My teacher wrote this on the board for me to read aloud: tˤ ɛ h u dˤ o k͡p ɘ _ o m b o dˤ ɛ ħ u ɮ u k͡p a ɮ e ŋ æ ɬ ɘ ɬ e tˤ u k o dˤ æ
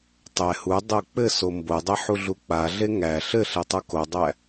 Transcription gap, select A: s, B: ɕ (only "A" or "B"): A